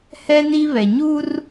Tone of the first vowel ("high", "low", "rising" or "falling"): high